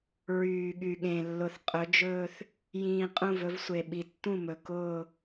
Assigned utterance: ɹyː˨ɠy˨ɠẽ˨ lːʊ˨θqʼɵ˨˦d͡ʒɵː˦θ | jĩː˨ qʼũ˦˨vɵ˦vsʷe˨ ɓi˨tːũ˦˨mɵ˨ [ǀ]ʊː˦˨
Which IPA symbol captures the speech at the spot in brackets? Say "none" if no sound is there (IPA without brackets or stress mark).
k